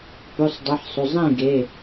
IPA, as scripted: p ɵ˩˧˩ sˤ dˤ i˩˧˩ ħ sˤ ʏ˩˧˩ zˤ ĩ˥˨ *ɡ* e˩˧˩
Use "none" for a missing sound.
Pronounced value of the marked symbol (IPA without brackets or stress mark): ɡ